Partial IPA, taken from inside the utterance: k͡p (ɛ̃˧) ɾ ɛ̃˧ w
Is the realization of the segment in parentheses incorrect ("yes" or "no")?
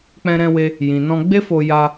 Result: no